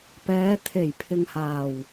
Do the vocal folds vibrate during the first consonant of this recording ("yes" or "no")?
no